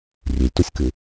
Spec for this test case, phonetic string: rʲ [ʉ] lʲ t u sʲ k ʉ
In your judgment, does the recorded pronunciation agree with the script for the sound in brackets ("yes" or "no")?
yes